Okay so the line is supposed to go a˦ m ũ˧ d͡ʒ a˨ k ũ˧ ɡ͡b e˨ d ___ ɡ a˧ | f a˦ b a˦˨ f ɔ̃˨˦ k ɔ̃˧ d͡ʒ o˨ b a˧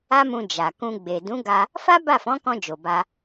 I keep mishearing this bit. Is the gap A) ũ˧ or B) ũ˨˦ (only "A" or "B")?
B